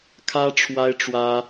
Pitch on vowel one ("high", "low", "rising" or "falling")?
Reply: high